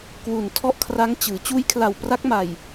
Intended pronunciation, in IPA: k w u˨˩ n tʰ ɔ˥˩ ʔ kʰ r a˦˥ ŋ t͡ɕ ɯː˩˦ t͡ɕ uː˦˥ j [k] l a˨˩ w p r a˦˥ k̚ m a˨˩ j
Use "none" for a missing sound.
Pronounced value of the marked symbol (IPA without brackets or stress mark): kʰ